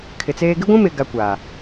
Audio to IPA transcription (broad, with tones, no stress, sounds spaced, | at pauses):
kʰ ɪ˨ t͡s eː˦ ɡ ɪ˦ ɡʷ ũ˦ m ɪ˨ ɡ a˦ kʷ aː˨